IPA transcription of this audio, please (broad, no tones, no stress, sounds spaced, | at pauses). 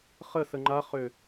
χ ə s ə ŋ͡ǃ a χ ø